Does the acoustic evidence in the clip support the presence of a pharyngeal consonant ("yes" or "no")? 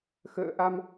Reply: no